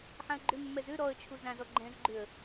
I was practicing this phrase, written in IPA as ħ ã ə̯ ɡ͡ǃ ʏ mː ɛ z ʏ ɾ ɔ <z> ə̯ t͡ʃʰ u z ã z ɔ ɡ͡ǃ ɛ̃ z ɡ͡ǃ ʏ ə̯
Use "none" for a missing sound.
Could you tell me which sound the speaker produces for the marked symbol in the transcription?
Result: none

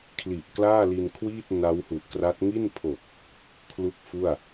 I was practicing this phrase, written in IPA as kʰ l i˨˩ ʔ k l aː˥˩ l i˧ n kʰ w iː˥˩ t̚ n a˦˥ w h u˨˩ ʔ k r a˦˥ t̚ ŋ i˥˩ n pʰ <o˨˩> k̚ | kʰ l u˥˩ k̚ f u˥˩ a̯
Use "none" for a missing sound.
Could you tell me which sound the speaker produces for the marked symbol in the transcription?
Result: o˨˩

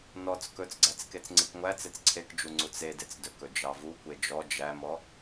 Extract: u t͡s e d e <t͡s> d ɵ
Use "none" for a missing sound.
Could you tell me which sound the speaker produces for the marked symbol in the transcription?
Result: t͡s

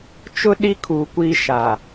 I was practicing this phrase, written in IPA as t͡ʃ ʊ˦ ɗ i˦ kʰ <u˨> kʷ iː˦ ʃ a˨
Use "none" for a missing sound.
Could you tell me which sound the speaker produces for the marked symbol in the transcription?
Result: u˨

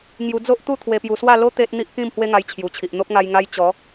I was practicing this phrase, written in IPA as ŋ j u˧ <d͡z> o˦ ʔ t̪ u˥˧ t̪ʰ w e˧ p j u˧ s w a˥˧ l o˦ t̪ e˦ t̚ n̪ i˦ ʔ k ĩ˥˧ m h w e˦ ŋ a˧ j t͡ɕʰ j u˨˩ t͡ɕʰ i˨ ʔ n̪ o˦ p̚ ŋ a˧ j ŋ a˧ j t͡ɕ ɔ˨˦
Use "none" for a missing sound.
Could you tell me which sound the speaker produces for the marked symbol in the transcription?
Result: d͡z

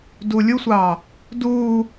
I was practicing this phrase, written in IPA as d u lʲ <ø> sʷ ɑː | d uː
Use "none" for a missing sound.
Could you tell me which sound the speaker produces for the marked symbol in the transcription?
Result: u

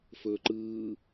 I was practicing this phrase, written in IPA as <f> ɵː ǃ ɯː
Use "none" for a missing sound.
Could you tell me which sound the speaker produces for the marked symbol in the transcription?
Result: f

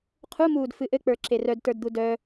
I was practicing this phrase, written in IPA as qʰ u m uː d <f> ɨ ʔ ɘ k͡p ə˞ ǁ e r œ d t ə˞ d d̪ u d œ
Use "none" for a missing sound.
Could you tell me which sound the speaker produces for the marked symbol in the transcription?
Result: f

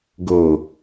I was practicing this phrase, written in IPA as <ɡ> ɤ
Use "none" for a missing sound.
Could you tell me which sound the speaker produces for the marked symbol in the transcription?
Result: ɡ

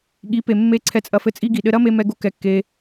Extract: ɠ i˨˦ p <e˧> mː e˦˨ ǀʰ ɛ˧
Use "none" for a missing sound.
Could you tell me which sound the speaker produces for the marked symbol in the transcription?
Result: e˨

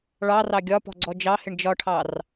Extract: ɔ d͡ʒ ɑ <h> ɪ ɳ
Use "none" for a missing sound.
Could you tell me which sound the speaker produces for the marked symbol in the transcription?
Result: h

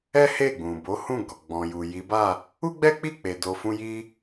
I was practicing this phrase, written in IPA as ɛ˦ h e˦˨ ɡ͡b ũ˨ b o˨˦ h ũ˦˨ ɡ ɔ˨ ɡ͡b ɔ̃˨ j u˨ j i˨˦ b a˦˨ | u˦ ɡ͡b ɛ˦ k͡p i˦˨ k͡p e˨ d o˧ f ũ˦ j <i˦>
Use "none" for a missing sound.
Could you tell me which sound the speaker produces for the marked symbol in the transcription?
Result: i˦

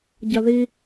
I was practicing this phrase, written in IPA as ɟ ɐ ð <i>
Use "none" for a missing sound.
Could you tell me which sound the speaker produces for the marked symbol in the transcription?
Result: i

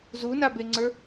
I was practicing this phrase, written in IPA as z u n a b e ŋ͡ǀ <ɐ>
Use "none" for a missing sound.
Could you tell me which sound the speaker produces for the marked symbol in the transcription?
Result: ə˞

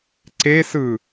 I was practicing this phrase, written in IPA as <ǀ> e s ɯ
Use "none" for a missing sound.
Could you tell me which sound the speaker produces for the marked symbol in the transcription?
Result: ǀ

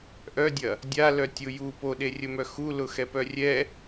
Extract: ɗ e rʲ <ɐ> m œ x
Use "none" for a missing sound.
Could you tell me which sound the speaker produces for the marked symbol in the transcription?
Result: ə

